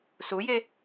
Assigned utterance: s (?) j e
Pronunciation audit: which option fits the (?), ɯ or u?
u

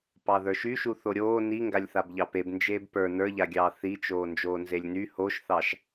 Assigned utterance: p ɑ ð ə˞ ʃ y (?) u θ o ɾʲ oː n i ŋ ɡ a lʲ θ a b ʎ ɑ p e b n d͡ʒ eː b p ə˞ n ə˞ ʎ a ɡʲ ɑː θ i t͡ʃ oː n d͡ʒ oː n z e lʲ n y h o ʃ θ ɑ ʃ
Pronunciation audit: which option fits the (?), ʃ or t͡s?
ʃ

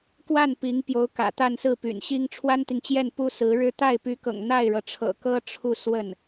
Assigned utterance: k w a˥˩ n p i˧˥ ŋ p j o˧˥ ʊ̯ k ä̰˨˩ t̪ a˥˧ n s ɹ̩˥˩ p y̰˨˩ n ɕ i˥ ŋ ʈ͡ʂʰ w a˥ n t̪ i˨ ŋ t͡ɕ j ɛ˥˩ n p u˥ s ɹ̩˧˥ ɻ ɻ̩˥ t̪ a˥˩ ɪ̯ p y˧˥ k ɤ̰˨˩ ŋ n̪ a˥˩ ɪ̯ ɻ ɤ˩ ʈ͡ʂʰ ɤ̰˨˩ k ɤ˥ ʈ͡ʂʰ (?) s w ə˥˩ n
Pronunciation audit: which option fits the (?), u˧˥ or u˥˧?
u˥˧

